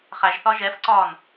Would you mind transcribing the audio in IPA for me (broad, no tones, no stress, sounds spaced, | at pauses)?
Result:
χ æ ʒ θ ɒ ʒ ɛ f ǀ ɒ n